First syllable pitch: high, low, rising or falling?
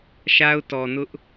high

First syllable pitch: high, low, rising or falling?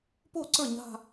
falling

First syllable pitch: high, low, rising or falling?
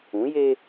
rising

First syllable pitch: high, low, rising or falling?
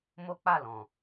high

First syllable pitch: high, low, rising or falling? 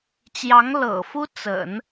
rising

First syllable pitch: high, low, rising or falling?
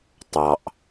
low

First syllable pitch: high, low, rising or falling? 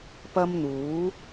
high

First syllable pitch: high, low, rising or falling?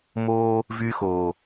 high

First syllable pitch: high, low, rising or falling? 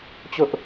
high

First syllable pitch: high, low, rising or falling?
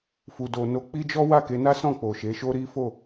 low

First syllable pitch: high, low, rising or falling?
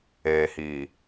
low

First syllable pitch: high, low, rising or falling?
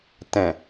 low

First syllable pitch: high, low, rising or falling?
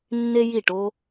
high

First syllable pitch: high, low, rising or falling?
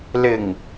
low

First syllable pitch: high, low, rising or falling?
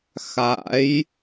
rising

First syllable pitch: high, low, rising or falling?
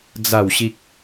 falling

